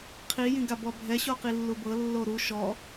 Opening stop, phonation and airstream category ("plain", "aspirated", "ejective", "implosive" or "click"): aspirated